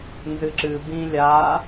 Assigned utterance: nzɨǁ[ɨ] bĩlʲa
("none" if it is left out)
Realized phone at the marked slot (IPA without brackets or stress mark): ɨ